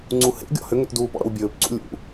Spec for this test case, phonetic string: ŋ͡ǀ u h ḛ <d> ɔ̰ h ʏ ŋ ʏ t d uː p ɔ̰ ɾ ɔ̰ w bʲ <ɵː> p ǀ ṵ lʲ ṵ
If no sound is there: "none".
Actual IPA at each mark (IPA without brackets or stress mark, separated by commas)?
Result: ɡʲ, ɵː